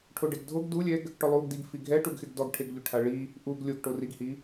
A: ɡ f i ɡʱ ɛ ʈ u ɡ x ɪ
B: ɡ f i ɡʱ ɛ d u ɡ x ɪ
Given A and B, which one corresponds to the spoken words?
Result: A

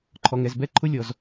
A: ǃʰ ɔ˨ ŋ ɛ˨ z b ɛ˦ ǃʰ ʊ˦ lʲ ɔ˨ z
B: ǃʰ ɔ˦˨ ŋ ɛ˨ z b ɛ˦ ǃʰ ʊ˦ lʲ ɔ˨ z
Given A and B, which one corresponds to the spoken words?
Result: A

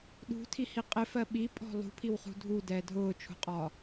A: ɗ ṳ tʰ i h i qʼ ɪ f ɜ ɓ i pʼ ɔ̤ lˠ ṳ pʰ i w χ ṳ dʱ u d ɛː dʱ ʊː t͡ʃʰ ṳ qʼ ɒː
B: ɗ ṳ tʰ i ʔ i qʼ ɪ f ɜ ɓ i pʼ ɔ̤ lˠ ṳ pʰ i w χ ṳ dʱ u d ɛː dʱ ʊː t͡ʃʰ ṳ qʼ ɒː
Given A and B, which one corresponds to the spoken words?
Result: A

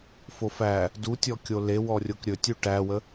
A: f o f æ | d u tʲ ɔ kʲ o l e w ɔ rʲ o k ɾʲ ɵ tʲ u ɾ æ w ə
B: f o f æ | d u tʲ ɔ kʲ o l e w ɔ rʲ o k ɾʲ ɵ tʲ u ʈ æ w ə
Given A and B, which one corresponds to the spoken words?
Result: B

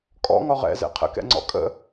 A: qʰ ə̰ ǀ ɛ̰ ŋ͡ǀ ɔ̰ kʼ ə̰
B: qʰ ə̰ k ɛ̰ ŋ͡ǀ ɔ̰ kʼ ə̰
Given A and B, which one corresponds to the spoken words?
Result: B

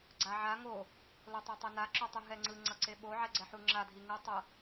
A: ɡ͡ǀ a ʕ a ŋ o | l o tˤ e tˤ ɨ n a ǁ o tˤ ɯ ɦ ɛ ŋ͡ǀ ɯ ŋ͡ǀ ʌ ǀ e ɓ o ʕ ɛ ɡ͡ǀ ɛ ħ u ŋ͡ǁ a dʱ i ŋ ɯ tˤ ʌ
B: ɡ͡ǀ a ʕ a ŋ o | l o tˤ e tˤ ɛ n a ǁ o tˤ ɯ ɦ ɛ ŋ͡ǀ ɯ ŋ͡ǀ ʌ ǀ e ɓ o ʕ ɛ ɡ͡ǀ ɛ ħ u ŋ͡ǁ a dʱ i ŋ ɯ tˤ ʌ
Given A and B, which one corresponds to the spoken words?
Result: B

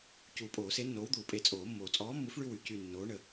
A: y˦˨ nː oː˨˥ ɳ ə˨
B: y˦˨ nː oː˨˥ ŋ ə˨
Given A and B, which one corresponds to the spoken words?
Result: A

